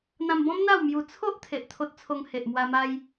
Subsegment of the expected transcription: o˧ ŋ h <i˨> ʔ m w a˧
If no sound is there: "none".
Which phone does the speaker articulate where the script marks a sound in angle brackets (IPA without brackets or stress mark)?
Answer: e˨